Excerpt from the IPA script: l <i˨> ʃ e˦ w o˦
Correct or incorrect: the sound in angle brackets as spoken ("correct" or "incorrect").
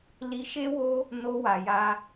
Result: incorrect